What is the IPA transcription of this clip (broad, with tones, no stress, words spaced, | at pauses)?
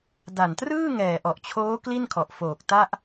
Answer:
da˨˩ntrɯː˥˩ ŋɛː˨˩ʔɔ˨˩ʔt͡ɕʰoː˦˥ kli˥˩nkʰɔ˨˩ʔfoː˨˩k̚ ta˥˩ʔ